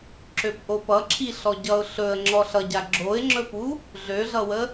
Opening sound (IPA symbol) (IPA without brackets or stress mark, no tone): ǁ